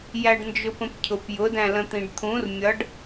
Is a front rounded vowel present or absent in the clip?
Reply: absent